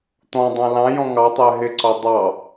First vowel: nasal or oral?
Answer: nasal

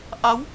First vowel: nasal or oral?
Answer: oral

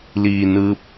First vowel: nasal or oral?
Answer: oral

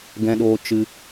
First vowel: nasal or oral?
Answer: nasal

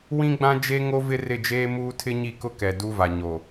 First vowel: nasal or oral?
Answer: nasal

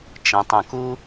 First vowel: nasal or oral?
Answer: nasal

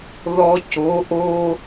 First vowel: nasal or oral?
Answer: oral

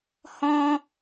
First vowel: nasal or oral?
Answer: nasal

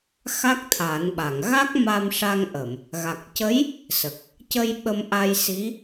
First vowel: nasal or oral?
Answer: oral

